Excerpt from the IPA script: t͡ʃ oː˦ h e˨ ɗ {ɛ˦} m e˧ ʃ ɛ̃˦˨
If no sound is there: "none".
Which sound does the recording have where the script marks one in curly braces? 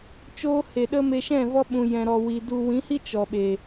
ə˦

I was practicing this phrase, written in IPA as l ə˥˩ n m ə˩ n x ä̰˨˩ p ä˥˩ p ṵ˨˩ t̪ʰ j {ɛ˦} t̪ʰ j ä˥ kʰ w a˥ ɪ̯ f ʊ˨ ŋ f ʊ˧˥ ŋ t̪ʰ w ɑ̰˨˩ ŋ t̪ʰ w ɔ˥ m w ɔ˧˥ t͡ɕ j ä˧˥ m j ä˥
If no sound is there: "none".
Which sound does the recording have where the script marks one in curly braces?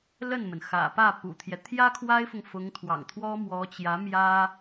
ɛ˦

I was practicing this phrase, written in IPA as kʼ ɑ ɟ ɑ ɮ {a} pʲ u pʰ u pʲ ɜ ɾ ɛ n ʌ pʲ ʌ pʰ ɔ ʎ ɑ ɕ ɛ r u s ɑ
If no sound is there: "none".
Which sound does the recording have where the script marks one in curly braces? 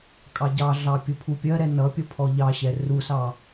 ɑ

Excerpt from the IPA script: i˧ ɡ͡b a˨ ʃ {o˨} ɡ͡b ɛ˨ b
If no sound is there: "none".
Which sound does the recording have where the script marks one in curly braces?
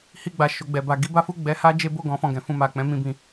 o˨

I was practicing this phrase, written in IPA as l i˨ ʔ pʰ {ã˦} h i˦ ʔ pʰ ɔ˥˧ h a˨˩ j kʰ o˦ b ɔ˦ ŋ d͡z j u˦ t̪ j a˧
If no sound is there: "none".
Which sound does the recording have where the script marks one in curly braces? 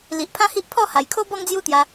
ã˦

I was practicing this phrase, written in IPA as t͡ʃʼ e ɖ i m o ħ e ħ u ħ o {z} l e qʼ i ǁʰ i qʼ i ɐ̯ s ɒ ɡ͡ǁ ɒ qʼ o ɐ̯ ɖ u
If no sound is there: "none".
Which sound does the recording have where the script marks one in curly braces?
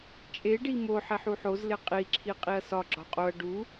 z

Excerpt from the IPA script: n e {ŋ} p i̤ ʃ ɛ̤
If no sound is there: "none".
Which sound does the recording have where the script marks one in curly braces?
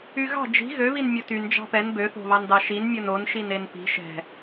n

